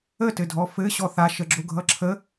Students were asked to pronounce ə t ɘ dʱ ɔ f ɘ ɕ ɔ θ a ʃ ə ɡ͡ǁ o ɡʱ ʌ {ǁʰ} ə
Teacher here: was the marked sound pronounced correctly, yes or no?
yes